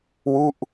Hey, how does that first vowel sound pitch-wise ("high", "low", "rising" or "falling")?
falling